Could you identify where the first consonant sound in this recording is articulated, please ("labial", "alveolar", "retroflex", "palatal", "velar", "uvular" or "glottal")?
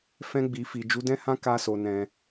labial